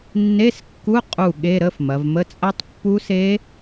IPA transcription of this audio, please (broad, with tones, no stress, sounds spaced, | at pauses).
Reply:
nː e˧˥˧ s kː u˧˥˧ qʼ u˧˩ ɠ e˧˥˧ ɾ ə˧˥˧ f m ɐ˩˧ v m ə˧˥˧ t͡sʼ ɐ˦˥ tˤ pː u˦˥ s e˦˥